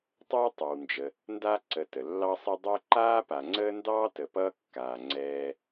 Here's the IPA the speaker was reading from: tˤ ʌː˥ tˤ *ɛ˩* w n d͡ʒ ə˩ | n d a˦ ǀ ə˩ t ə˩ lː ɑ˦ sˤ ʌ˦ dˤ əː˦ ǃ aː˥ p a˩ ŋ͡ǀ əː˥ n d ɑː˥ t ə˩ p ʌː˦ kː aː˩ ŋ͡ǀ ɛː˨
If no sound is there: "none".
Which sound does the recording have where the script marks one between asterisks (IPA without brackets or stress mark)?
ɛ˩